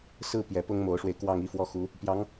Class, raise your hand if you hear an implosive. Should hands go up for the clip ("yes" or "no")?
no